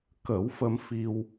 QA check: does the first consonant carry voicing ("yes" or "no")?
no